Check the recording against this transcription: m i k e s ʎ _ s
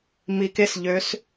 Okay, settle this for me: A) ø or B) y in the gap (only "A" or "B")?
A